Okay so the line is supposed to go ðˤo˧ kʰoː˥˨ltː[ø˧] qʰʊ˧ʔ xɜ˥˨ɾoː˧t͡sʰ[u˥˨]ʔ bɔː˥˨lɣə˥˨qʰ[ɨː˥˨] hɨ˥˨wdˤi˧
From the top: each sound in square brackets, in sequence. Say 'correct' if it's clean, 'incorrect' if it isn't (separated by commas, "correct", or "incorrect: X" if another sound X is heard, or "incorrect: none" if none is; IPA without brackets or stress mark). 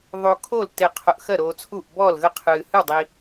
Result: incorrect: e˧, correct, incorrect: ɨː˧